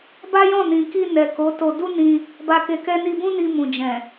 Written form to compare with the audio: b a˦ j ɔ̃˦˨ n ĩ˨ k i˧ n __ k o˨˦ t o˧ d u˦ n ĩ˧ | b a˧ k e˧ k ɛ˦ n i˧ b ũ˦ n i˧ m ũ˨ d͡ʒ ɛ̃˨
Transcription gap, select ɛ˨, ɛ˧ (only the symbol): ɛ˨